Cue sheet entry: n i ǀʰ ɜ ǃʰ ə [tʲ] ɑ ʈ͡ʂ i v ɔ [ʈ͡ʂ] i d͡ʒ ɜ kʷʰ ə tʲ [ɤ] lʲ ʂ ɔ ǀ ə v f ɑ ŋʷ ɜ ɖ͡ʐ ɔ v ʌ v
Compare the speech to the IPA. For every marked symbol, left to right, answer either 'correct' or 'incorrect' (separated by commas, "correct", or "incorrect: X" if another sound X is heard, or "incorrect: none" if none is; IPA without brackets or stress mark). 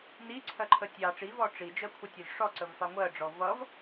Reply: correct, correct, incorrect: ɔ